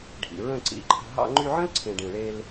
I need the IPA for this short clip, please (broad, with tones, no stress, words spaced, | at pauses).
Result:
ɖʱḭ˨ɹə̃˦˨ ǀḭ˨˦ǃʰə̤˧ ɦɑ̰˧ŋ͡ǃy˧ʕə̃˦lǀʰẽ˨ ɖĩ˨ɭe˧l